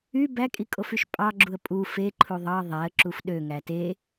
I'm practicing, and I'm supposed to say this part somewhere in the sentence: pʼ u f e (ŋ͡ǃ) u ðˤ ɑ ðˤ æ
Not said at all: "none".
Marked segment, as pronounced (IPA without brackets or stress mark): ǃʰ